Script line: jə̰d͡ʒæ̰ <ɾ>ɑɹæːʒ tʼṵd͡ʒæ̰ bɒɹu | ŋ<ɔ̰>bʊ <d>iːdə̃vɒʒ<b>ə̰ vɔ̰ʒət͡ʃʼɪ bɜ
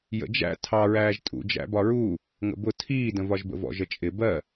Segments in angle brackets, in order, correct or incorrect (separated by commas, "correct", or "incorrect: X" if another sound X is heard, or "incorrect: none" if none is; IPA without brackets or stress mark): incorrect: tʰ, incorrect: ə̰, incorrect: tʰ, correct